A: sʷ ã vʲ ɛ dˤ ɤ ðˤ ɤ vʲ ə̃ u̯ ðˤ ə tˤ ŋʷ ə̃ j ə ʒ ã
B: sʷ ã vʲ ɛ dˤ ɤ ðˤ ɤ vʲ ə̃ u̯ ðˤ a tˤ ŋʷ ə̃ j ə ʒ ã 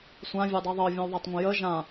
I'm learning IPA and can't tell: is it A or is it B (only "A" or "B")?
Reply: B